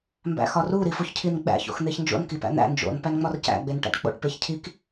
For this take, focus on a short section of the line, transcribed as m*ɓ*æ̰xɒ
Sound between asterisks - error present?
yes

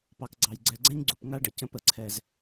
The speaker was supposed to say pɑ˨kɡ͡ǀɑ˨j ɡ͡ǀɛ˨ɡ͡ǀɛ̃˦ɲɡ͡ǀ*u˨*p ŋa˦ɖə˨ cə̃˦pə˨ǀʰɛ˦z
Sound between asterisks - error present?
no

